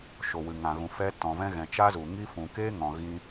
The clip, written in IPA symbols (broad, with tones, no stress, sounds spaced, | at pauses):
ʃ o˨ w ɨ˨ ŋ ã˨ ɣ ũ˨ f ɛ˦ t ɔ̃˨ v ɛ̃˦ ɣ ɛ̃˨ t͡ʃ a˦ z u˨ ŋ i˦ f ũ˨ k eː˦ ŋ ɔ̃˨ ɣ ĩ˦